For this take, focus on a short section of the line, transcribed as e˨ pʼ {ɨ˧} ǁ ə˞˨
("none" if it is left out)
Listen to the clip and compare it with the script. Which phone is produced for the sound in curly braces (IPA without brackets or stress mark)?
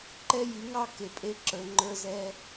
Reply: e˧